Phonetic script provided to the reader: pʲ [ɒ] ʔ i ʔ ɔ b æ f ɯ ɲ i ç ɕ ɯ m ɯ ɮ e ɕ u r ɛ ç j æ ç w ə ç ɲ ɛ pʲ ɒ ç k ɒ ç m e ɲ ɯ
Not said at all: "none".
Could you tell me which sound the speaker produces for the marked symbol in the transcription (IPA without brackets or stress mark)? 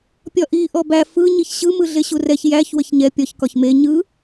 ɒ